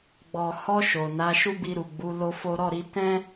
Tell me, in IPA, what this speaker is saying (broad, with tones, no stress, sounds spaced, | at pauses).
ɡ͡b ɔ˨ h ɔ˧ ʃ o˨ n a˨˦ ʃ u˦ b i˧ ɾ u˨ ɡ͡b u˨˦ l o˦ f o˦ ɾ ɔ˦˨ ɾ i˨˦ t ɛ̃˦